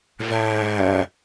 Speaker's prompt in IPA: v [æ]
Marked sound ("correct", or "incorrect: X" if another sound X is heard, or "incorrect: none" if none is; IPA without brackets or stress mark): incorrect: æː